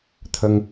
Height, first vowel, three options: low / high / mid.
mid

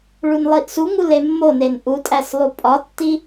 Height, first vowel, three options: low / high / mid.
high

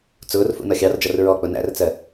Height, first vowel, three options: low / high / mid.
high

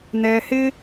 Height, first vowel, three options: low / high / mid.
mid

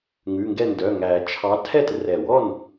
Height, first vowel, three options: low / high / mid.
high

